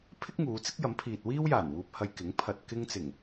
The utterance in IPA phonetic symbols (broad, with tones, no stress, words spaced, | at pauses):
pʰɪ˥k̚ŋuː˨˧ t͡sɪ˥k̚jɐ˨˥mpʰiː˨t̚ wiː˥wjaː˨˩n wuː˧p̚hɐ˧jkɪ˨˥ŋ pʰɐ˨t̚ kɪ˧ŋt͡sɪ˨˩ŋ